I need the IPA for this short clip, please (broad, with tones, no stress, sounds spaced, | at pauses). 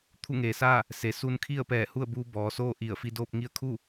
t̪ʰ u˥˨ ŋ eː˩˧ s aː˥˨ | s e˩ s u˧ n kʰ i˥˨ ə̯ p ɛː˧˩ h u˥˨ ə̯ b uː˧ b ɔː˩˧ s oː˥˨ ʔ i˧˩ ə̯ f i˧ d oː˥˨ p̚ ŋ i˥˨ ə̯ kʰ u˥˨